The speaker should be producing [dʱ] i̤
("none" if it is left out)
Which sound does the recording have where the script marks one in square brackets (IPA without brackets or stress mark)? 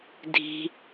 dʱ